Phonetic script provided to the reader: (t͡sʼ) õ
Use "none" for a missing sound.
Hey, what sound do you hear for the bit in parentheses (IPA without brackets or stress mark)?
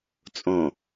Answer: t͡sʼ